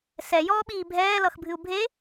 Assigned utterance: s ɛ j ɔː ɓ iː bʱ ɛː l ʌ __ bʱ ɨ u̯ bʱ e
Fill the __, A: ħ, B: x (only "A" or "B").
B